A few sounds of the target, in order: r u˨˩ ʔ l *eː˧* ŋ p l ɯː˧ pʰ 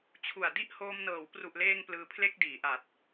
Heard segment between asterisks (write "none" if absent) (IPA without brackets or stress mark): eː˧